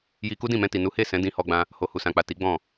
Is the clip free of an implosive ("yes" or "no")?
yes